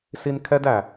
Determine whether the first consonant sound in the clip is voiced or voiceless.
voiceless